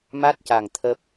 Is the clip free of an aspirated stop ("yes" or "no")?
no